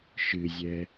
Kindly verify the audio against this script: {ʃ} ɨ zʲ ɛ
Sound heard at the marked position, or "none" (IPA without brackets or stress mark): ʃ